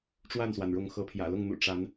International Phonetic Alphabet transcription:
ʈ͡ʂ w a˥˨ n s w a˩ n ɻ ʊ˨˦ ŋ x ɤ˨˦ pʰ j ä̰˨˩ l ʊ˥˨ ŋ n̪ ṵ˨˩ ʈ͡ʂ a˨˦ n

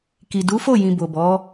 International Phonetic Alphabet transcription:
k i˨ d u˨˦ f o˦˨ j ĩ˨ b o˨ b ɔ˨˦

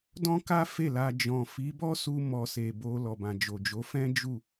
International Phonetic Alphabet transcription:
d ɔ̃˦ k a˦ f e˦˨ l a˧ d͡ʒ ɔ̃˨ f i˨˦ b ɔ˦ s u˧ m ɔ˧ s e˨ b o˧ l ɔ˨ b ã˨ d͡ʒ o˨ d͡ʒ o˨˦ f ɛ̃˦ d͡ʒ u˦˨

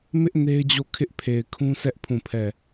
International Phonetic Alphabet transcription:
m ɪ˦ ʔ n e˦ ɪ̯ d͡ʑ o˦˨ kʰ ɪ˦ ʔ pʰ e˨ ɪ̯ kʰ ũ˦ s ɛ˦ ʔ pʰ ũ˦˨ pʰ ɛ˦˨

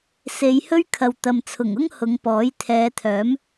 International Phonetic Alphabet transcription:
s e˨˧ j h ɵ˥ ɥ kʰ ɐ˨ w t̪ ɐ˨ m t͡sʰ ʊ˨˩ ŋ ʊ˥ ŋ h ʊ˨˧ ŋ p ɔː˨˥ j t̪ʰ ɛː˨˧ t̪ʰ œː˨˥ m

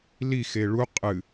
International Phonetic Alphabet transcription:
l i x e ɭ u qʼ ɨ

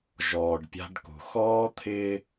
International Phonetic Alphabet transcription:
ʒ ɔː˨ ɖ pʲ a̤˦ ɖ k ṳ˨ x ɔː˦ t̪ʰ ɪː˦

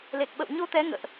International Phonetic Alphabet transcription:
l e˨˩ k̚ ɓ ə̰˧˨ w ɲ o˧ t̪ ɛ˨˦ ŋ ə̰ː˧˨ ʔ

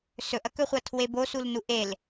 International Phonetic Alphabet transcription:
s ɵ ʔ ɐ k ɵ χʷ ɐ tʰ w e b o s u l n u ʔ e l

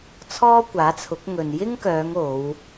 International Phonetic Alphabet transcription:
t͡sʰ ɔː˥ kʷ aː˨˥ t͡sʰ ʊ˨˥ k̚ ŋ ɵ˨ n j ɪ˥ ŋ k œː˨˧ ŋ o˨˧ w

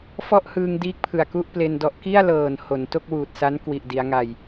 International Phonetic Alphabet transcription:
f ɔ˥˩ ʔ h ɯː˧ ŋ d iː˦˥ k̚ pʰ ɯ˨˩ a̯ k u˥˩ ʔ p l e˧ n d ɔ˦˥ ʔ k i˥˩ a̯ l ɤː˨˩ n h o˩˦ n t o˥˩ k̚ w uː˨˩ t̚ s a˦˥ n k w i˨˩ ʔ d i˩˦ a̯ ŋ a˨˩ j

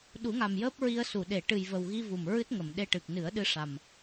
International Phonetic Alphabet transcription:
ɗ u˨˩˦ ŋ a˨˩ m j əː˦˥ p̚ ɹ i˧ ə̯ s u˨˩˨ ɗ e˨˩˨ ʈ ɨ˨˩ j v ə˨˩ w ɣ i˧ v u˨˩ m ɹ ɨ˦˥ t̚ ŋ ə˨˩˨ m ɗ e˧ ʈ ɨ˨˩ k̚ n ɨ˨˩˦ ə̯ ɗ ɨ˧ ʂ a˨˩ m

